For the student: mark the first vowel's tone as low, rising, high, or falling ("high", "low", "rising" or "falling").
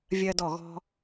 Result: high